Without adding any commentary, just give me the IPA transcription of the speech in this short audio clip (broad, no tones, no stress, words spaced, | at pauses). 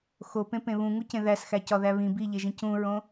xopẽpẽ βũŋucẽ ðæsxæcɒðæ βĩ biʎeʒĩ cũɹõ